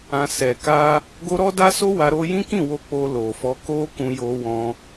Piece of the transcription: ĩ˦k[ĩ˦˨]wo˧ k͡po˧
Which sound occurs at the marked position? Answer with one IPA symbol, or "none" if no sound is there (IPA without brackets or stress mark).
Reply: ĩ˦˨